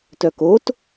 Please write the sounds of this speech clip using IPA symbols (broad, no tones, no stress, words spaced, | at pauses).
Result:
tœkot